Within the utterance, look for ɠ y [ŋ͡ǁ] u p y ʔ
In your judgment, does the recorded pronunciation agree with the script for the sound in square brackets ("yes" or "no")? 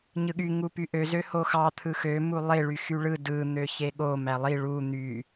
no